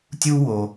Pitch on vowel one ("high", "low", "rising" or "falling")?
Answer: high